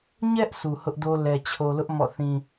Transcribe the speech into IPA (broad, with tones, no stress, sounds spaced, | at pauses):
ɲ ɛ˦ ʔ sʰ u˨ h ʊ˦ ʔ d o˦ l ɛ˨ t͡ɕʰ o˨ l ʊ˦ ʔ m ɔ̰˦˨ θ ĩ˦